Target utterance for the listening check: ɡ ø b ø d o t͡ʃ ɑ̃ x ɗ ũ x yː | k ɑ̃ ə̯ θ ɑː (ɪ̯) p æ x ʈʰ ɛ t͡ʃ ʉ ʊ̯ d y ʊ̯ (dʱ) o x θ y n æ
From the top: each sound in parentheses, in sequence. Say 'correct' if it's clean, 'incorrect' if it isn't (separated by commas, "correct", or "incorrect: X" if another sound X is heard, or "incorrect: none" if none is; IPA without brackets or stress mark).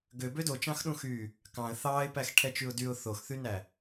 correct, incorrect: θ